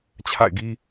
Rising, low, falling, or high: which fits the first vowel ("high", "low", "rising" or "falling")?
falling